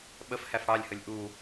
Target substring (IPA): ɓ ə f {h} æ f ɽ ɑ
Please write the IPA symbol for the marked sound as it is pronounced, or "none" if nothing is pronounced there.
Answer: h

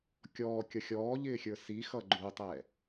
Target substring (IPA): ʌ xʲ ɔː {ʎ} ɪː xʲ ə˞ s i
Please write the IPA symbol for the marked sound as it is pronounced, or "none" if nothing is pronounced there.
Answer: ʎ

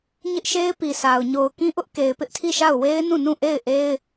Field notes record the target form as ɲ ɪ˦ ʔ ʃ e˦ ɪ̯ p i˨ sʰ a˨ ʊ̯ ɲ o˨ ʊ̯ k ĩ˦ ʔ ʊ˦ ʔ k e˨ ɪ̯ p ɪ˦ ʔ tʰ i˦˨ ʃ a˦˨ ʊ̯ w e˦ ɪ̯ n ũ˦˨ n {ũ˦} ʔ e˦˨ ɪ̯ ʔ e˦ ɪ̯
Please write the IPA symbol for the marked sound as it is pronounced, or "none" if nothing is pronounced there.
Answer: ũ˦˨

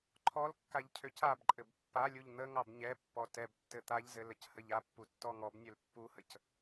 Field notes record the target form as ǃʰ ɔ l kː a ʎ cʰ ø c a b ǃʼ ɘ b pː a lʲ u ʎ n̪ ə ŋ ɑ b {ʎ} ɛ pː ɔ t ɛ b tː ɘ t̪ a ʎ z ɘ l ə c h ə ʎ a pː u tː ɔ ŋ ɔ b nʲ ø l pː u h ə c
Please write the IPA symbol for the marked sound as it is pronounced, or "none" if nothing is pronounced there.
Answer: ɲ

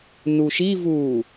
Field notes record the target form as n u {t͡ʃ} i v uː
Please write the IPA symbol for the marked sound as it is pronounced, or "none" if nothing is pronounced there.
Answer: ʃ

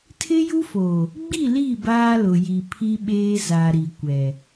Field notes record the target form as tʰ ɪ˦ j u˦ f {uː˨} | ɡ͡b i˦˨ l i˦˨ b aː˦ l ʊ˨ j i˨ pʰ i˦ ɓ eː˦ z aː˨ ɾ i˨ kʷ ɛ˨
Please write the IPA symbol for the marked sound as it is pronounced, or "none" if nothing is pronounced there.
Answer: oː˨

